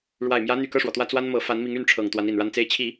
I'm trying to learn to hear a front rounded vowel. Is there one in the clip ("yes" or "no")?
yes